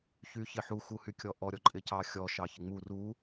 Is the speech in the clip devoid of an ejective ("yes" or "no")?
no